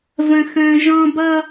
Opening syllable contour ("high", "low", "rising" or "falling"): high